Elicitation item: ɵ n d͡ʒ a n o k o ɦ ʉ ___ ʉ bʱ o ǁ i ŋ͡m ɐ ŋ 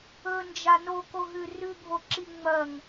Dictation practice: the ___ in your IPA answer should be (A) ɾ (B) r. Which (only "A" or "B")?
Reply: B